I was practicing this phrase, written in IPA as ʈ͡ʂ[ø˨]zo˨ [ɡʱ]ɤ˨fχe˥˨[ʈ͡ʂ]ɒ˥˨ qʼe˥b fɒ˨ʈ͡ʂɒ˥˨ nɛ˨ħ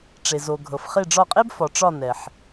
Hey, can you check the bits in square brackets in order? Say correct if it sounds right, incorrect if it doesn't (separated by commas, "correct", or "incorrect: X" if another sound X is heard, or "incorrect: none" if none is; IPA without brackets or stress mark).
incorrect: e˨, correct, incorrect: ɖ͡ʐ